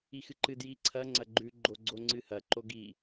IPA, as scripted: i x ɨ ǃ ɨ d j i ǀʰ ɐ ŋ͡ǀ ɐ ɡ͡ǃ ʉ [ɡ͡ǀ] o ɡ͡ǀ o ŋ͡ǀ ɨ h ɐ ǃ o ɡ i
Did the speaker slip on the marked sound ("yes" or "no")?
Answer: yes